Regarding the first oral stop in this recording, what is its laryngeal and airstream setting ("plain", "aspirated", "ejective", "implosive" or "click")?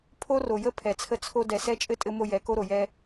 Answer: aspirated